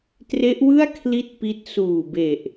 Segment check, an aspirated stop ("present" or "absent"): present